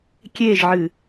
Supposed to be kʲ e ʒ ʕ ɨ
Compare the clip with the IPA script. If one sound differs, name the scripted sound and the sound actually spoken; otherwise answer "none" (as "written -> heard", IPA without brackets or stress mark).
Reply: none